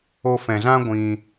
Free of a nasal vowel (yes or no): no